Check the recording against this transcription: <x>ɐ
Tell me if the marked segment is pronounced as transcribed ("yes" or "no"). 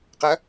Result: no